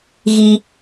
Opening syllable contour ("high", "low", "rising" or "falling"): low